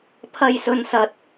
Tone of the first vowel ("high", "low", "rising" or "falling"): high